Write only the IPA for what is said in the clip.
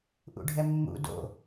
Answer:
ʔ ṵ ɖʱ ɛ mː ṵ d o̰

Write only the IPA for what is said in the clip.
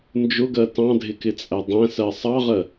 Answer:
n d͡ʒ ʊ ɡ ɜ t ɑ̃ dʱ ɪ k ɪ t͡sʼ æ dˤ æ̃ s ɜ sˤ ɑ ʁ ɜ

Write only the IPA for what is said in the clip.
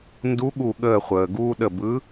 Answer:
n d u˧˥ ɠ u˧˩ ɠ əː˧˩ χʷ əː˩ ɡ uː˧ ɗ ə˧˩ b ɯ˧˥

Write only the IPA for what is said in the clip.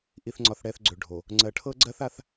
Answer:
ʔ i˨ θ ŋ͡ǀ ɒ˨ θ ɽ ɛ˨ θ ɡ͡ǀ ø˨ ɖʱ o˨ | ŋ͡ǀ ɜ˨ ʈʰ ɤ˦ ɡ͡ǀ ɜ˦ θ a˦ θ

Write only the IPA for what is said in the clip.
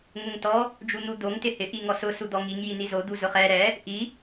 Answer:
ŋ ʊ ŋ t ɔ | d͡ʒ u n̪ u d̪ o ŋ t ɪ h ɪ ʔ i ŋ ɔ s ʊ s u d̪ ɔ ŋ i ŋ j i n i z o d̪ u z ʊ χ ɛ ɾ ɛ | ʔ i

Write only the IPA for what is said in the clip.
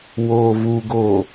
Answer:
w oː v u ɡ oː

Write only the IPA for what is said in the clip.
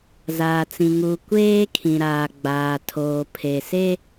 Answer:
z aː˨ t͡s ĩ˨ ŋ uː˨ kʷ eː˦ kʰ ĩ˨ ɾ aː˨ ɡ͡b aː˨ tʰ oː˨ pʰ e˨ s e˦

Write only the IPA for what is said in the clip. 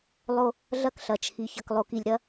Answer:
lˠ o˦ | ɮ ɐ˦ k ɬ ɐ˨ t͡ʃʰ i˨ ç ɐ˨ k lˠ o˨ k i˨ lʲ ɾ ɐ˦

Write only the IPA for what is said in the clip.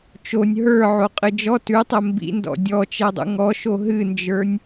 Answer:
t͡ʃ o nʲ ɦ ə˞ ʕ o qʼ ɨ d͡ʒ ɔ t ʉ tˤ ɛ m b ḭ n d ɔ̰ dʲ ɔ t͡ʃ ɛ dˤ ṵ ŋ ɔ ʃ o ɦ ɨ n d͡ʒ ə˞ nʲ

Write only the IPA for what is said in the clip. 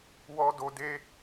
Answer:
w ɔ˧ d o˧ d e˦

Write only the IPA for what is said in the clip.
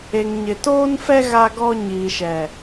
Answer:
e˨ ŋ ɲ ɪ˨ t oː˦ n f ɛ˦ ɣ a˦ ɡ ɔ˦ ɲ iː˨ ʃ ɛ˨

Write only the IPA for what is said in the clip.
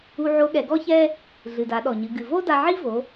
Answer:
u˧ ʕ o˧˥ ɠ ɛ˩˧ ɡ ɔ˥ ç ɛ˥ | ɮ ɨ˩ d a˩˧ ɗ ɔ˩ ɲ ɨ˩˧ ɡ ɨ˩ v o˥ d a˧ ʕ i˥ v o˩˧

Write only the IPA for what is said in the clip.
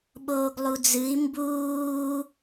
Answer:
ɓ oː ɡ lˠ u d͡z ɨ i̯ m b uː

